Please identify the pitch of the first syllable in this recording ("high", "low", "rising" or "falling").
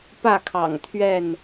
falling